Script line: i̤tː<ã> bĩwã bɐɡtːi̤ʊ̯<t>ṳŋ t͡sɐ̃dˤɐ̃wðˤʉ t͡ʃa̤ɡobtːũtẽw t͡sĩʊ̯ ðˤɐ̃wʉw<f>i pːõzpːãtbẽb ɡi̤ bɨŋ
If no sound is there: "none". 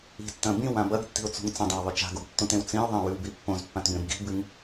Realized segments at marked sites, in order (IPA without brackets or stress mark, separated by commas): ɐ̃, t͡s, b